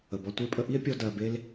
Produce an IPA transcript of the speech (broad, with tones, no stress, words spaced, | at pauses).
ə˨bɔ˧ tʷe˧pʼə˧ ʔi˦e̯pʲɔ˧ dɜ˧be˦l